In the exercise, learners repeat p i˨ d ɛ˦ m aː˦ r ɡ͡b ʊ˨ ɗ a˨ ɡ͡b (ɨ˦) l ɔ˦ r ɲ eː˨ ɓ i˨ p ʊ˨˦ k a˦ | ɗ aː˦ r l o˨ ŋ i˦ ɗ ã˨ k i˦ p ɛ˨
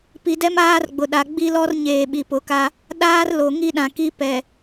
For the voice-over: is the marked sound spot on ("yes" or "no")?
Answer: no